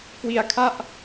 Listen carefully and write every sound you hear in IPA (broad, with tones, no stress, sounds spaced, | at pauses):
k w i˧ a̯ kʰ a˥˩ ʔ